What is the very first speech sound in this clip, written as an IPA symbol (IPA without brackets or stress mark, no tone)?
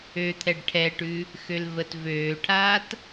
ø